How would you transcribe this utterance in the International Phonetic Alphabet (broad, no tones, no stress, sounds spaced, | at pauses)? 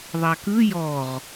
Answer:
ðˤ a k ɯ j ɔ ʁ